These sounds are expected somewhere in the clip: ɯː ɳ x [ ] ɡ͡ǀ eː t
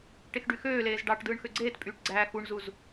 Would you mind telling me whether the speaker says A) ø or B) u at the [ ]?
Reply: A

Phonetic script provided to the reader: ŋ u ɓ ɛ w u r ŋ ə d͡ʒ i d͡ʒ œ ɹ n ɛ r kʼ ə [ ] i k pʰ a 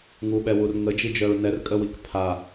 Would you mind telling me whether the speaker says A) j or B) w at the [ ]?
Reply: B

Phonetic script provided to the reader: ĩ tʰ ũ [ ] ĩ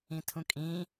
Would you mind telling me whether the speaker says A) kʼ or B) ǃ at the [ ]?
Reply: A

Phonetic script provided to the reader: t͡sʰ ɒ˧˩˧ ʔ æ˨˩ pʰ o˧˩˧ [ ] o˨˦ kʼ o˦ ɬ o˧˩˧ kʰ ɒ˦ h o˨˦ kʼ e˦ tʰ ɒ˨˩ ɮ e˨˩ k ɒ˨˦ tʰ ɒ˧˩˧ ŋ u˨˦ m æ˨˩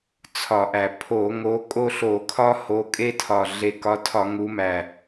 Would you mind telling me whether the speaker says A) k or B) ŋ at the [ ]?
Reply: B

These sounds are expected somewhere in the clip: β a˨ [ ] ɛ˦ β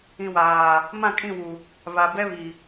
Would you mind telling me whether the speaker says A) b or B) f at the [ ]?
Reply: A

